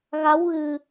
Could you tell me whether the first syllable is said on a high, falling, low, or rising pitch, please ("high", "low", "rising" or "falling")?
rising